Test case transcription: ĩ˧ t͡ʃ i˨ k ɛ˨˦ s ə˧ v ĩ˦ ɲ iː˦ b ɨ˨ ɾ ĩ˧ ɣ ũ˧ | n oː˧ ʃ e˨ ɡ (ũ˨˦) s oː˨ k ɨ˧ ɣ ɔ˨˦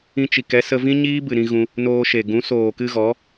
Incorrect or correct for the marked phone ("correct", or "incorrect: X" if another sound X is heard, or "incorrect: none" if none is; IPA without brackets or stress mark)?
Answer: correct